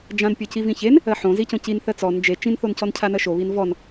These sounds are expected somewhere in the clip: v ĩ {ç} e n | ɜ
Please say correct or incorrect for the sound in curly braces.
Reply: correct